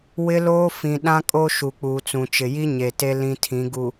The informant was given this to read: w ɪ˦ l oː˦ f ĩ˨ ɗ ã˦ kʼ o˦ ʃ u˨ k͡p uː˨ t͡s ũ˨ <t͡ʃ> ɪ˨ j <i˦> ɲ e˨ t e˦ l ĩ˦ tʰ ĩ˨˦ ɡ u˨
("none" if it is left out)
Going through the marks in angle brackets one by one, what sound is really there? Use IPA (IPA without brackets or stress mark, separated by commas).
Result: t͡ʃ, i˦